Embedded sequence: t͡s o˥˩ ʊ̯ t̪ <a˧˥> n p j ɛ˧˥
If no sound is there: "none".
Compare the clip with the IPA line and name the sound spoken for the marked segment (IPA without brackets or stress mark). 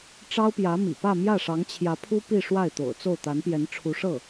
a˧˥